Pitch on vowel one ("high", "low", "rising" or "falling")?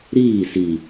falling